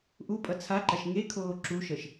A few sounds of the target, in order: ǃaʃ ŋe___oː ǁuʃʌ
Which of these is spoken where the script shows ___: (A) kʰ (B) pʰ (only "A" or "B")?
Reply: A